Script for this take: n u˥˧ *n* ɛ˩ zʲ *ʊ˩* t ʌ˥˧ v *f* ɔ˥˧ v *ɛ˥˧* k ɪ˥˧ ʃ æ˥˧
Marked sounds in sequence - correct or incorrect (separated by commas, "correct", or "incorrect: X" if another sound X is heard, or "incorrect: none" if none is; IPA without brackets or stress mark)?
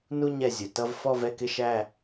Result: incorrect: ɲ, correct, correct, correct